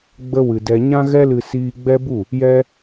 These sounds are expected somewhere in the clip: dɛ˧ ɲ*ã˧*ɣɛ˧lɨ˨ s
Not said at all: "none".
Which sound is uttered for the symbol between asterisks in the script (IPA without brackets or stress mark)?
ã˧